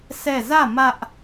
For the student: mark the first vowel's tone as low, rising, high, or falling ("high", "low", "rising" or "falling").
falling